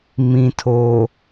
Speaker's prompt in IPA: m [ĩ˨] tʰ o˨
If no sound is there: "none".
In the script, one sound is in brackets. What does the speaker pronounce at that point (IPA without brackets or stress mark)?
ĩ˨